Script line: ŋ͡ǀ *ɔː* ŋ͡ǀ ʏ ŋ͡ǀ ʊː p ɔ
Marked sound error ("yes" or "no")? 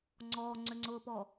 no